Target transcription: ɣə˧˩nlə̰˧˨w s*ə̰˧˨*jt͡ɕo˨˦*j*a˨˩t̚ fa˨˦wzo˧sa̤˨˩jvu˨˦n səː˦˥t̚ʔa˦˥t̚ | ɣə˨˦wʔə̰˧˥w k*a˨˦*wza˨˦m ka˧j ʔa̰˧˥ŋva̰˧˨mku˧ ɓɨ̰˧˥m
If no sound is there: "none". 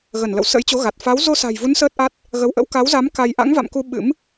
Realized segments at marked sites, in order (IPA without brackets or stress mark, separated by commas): ə̰˧˥, ɣ, a˨˦